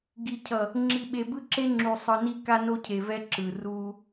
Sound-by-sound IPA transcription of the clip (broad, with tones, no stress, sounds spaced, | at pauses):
ɡ i˨ cʰ ʌ˨ | ŋ͡ǁ i˨ ɓ e˨ b ɯ˦ ǁ e˦ ŋ͡ǁ u˨ sˤ ɯ˨ n i˦ k a˦ n o˦ cʰ e˨ v ɛ˦ ǁ ɯ˨ r u˦